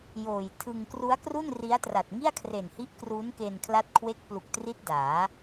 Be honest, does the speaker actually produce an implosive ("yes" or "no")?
no